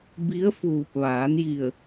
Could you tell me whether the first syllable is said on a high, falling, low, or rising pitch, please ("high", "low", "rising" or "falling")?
rising